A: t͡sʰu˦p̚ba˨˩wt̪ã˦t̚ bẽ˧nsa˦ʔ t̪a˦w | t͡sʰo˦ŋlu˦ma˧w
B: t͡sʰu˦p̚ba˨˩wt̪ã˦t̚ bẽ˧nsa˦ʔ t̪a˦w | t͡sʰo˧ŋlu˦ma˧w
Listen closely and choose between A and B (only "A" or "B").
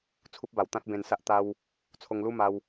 B